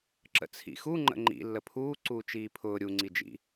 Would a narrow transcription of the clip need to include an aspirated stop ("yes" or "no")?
yes